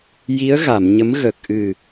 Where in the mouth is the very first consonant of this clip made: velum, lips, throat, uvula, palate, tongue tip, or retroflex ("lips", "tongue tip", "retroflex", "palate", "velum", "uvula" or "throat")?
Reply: palate